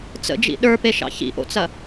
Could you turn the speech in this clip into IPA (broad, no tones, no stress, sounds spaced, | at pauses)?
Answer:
t͡s ə̰ d͡ʒ ḭ ɗ ə˞ p e ʃ ɑ̰ ç ḭ ʔ o̰ t͡s ɐ